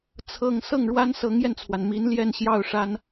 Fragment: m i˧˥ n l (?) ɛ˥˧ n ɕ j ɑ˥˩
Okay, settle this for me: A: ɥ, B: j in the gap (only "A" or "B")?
B